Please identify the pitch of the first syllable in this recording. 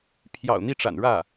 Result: low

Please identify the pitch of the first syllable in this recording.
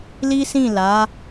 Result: high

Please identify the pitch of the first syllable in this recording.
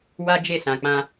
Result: high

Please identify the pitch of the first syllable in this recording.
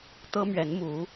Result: high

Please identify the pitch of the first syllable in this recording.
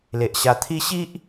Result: low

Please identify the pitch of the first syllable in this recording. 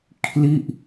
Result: falling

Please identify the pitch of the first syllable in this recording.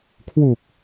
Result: low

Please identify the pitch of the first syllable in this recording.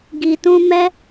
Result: low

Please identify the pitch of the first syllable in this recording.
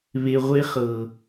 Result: high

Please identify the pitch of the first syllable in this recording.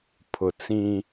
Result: low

